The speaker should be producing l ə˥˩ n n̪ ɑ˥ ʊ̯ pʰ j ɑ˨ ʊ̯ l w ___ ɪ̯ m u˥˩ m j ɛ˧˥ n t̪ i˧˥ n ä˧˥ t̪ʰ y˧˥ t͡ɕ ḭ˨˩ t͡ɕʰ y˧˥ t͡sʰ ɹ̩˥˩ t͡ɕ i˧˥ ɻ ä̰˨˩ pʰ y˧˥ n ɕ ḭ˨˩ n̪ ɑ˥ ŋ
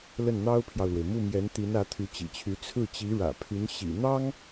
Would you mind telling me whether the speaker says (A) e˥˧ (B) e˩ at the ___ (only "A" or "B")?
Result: B